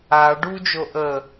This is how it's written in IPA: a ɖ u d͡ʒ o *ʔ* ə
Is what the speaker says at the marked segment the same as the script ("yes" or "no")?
yes